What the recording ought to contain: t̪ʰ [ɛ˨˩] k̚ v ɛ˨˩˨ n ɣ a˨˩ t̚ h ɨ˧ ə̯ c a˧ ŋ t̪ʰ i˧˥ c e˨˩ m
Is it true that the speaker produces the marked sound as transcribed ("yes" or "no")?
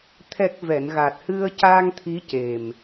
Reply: yes